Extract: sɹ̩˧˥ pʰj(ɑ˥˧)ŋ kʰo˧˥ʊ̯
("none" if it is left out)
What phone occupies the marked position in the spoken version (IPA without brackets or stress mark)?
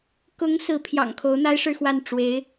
ɑ̰˨˩